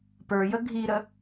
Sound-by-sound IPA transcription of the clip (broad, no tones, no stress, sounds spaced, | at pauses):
p ə˞ j ə ɡʱ i ɾ ə